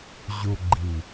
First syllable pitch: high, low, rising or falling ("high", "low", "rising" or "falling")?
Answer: low